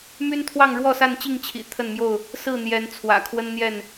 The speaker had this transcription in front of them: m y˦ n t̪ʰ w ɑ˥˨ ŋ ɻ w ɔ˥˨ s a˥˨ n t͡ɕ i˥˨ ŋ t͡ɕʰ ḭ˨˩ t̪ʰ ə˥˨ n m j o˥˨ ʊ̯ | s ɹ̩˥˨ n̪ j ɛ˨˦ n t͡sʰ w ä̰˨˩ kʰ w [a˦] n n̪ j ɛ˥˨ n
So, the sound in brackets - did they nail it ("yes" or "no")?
no